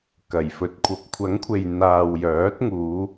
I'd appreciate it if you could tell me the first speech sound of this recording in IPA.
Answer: k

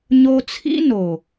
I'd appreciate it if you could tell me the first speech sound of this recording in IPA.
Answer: ɲ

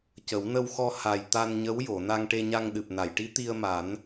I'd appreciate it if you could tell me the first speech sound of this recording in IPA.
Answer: c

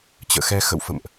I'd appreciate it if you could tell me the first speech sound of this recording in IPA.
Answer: t͡ɕ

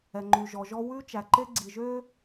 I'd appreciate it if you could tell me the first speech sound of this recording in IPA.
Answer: ɛ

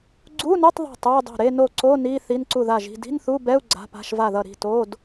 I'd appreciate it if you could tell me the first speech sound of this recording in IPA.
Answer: ɡ͡ǀ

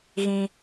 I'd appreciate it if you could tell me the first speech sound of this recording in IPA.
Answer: ɣ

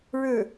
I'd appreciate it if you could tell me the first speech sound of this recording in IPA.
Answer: ɻ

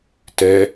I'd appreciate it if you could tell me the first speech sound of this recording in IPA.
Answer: t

